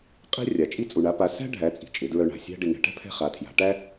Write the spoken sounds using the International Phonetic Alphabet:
qʼ ɛ̤˥ rʲ a˩ t͡ʃʼ i˥ t͡sʼ u˩ ɳ a˩˧ p a˩˧ s æ̤˥ ɖʱ æ˩˧ t͡sʼ i̤˩ t͡ʃʼ ɪ˩˧ d ɹ œ˧ ɳ a̤˩ sʲ æ̤˥ ɖ ɪ˩ ŋ ɛ̤˩ ʈ ɛ̤˥ pʰ ɛ̤˧ χ a˩˧ tʰ j a̤˩˧ ʈ æ˥

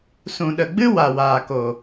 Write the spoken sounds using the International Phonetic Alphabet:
s ũ˨ ɗ ə˨ ɡ͡b ɨ˦ w a˨ w aː˨ k o˨

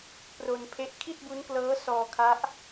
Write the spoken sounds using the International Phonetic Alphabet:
p r o˧ n pʰ e˦˥ ʔ kʰ i˥˩ t̚ b u˦˥ n k l ɤː˦˥ s ɔː˧ kʰ a˦˥ ʔ

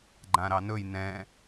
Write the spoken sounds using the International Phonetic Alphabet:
ɡ͡ǃ ã ɾ ɑ n ɵ j n ɛ̃

